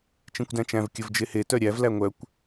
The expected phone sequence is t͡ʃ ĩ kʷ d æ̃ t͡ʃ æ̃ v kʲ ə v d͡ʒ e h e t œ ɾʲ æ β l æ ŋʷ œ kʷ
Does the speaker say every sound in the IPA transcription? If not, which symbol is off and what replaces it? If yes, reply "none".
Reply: β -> v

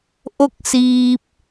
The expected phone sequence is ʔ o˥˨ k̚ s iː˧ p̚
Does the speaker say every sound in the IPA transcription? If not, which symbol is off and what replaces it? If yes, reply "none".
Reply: none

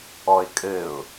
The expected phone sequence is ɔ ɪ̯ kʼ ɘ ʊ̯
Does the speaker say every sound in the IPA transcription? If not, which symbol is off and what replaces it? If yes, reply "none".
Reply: none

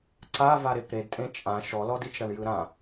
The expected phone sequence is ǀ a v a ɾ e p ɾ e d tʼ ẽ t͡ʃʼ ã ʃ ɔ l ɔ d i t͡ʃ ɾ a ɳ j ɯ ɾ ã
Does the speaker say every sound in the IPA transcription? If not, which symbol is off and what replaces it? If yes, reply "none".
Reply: none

